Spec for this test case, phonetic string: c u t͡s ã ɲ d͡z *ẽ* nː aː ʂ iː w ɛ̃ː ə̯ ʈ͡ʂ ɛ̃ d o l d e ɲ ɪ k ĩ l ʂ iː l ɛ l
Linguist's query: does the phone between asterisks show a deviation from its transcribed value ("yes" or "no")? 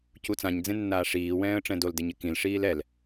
no